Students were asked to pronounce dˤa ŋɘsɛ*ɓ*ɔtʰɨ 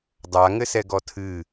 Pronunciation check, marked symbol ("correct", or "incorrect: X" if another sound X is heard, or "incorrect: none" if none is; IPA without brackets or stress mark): incorrect: ɡ